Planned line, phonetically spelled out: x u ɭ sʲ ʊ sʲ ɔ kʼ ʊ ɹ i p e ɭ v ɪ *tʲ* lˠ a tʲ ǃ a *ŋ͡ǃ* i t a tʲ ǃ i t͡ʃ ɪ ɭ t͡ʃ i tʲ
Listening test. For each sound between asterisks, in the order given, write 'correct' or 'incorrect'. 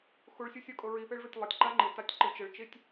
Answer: correct, correct

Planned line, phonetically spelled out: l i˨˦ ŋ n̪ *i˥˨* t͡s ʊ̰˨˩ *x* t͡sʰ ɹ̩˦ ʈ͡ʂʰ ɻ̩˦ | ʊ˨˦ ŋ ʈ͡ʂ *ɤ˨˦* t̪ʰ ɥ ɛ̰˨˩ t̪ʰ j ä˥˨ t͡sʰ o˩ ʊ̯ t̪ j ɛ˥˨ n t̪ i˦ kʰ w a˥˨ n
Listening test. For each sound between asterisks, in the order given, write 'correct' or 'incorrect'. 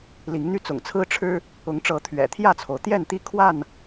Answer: incorrect: y˥˨, incorrect: ŋ, correct

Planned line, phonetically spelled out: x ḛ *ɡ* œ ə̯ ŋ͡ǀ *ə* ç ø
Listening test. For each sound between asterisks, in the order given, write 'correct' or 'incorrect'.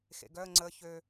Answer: correct, correct

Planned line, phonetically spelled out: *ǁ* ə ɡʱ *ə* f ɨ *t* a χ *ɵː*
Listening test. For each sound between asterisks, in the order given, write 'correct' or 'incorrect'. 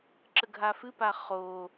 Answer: correct, incorrect: a, incorrect: p, incorrect: oː

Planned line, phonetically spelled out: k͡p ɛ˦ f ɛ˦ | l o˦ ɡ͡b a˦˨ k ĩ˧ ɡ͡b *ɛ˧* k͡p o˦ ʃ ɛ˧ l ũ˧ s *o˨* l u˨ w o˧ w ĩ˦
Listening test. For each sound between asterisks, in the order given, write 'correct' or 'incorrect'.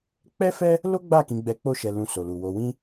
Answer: correct, correct

